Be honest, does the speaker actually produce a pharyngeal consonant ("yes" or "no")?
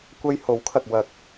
no